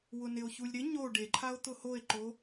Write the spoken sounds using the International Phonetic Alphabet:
wʊnɪo̯çulʲ ɾɪ ɲo ɖeǃʰao̯ t̪ʊhoe̯ǃo

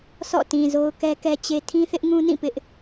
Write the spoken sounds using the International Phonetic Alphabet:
sɔ̰˦˨tĩ˨zo˦ʊ̯ kɛ˦kɛ˦t͡ɕe˦ tʰĩ˦θɪ˦ʔŋũ˦nĩ˦˨ pɪ˦ʔ

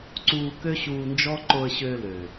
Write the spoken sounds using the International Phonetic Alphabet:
ǀuː˧kø˦ɕuː˧nd͡ʒɔ˦ ǃo˧ə̯ɕøː˧lø˨

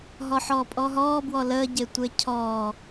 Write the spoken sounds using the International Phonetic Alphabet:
ɦɔħɔːpʼɔɦɔː bwɔləː ɟetʷecʰɔː

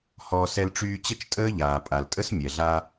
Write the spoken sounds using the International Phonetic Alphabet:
hɔː˧s ɛ˧lʈ͡ʂyː˧t͡ɕə˥t͡ʃ tʼəː˥ʎaː˩pʼa˩ltʼə˥s mʲɛ˩ɮa˧

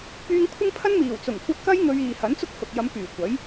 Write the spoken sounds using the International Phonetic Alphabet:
pyː˧ŋkʷʰɪ˥ŋpʰɐ˥nmiː˨˩w t͡sʊ˨˩ŋkʷɐ˧t̚kɐ˥j ŋɵ˧ɥiː˨ hɐ˨˥nt͡sʊ˥k̚hʊ˨k̚jɐ˨˧m pyː˨˩ kʷɐ˨˥j

